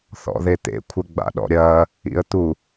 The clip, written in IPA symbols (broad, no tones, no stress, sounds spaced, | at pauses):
θ ɔ̰ ð e t̪ ḛ kʷʰ ɘ ɡ͡b a̰ ɗ ɔ̰ ɾʲ ɐː | ḭ ə̯ t̪ u